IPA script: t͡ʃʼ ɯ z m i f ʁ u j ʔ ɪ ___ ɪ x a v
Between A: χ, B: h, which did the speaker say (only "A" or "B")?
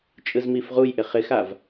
A